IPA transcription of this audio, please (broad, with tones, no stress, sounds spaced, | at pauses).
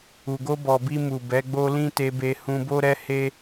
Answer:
u˨ ɡ o˧ b ɔ˨ b i˧ m u˨ b ɛ˨˦ ɡ͡b o˧ l ĩ˦ t e˧ b e˧ h ũ˧ b o˦ ɾ ɛ˦ h e˦